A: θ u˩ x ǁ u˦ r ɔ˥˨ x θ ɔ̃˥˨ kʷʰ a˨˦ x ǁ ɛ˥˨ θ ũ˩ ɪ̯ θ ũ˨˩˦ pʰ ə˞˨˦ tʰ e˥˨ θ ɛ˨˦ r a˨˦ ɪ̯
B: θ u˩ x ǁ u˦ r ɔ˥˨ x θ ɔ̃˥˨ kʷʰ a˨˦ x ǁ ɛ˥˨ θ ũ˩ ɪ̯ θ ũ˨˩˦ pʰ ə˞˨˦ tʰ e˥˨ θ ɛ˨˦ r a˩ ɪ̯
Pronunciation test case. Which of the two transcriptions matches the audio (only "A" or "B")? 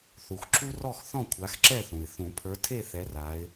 A